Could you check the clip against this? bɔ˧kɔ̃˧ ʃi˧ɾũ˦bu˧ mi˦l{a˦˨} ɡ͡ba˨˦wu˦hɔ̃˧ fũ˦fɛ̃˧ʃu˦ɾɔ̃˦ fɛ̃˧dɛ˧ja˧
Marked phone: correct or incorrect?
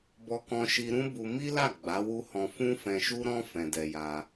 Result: correct